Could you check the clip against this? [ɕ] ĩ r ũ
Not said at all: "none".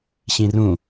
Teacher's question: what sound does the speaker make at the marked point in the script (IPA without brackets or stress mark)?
ɕ